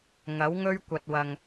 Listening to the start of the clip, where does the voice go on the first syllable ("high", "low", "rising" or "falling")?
rising